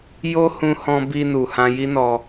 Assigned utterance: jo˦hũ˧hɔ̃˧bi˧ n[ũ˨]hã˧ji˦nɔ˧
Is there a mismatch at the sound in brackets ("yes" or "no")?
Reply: yes